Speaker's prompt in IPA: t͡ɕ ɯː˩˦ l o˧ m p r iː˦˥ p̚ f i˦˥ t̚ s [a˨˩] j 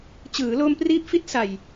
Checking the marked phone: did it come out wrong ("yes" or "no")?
no